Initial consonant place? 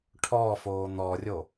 retroflex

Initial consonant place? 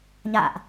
palatal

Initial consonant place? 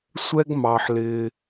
alveolar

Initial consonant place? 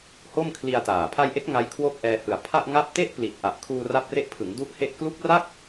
glottal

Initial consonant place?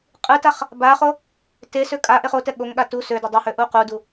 uvular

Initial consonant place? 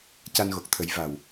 palatal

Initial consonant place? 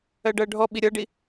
retroflex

